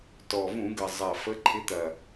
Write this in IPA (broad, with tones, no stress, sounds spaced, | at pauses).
t ɔ˨˩ v ũ˧˩˧ ɡ ə˨˩ zˤ ɐ˨˩ f ə˨˦ ǃʰ ɪ˨˦ t̪ ɐ˨˩